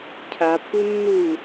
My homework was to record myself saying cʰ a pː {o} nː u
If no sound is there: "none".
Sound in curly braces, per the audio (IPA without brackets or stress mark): u